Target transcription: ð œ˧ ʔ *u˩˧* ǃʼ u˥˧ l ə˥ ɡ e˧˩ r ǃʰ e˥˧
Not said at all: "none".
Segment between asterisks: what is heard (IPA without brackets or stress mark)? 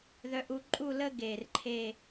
u˧